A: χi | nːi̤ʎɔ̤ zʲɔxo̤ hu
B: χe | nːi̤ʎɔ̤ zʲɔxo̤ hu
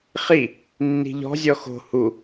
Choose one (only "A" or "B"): A